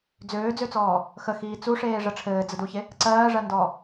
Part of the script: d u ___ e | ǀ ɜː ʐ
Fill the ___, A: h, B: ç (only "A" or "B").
B